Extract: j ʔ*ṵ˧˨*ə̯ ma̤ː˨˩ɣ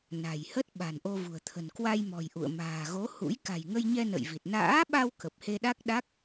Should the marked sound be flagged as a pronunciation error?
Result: no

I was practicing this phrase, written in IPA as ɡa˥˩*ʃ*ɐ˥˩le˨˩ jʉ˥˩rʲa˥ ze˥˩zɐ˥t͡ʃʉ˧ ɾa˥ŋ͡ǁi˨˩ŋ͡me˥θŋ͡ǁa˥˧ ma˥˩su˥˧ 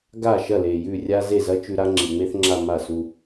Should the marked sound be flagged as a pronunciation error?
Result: no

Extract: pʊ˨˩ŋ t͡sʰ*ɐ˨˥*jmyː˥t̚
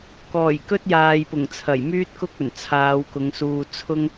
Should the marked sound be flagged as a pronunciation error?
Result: yes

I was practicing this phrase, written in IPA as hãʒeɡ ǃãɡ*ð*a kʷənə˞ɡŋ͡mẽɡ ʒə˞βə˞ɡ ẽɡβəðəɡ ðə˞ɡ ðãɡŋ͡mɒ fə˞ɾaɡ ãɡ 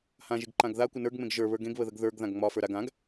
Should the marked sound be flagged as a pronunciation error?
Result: no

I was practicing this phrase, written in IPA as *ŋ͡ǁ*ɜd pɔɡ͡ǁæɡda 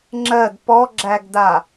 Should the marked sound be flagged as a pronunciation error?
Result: no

